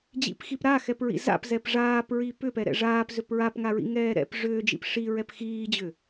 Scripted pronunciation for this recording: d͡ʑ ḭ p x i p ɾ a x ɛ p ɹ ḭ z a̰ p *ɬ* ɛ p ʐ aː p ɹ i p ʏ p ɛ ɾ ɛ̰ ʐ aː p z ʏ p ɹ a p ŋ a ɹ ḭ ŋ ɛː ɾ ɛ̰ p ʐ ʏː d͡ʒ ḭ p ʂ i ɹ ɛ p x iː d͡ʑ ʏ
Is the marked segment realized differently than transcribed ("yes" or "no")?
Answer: yes